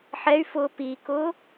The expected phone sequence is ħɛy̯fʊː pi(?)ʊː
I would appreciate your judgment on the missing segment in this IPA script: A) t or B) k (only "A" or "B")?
B